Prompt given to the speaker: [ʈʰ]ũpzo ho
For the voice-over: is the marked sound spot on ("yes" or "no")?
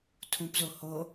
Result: no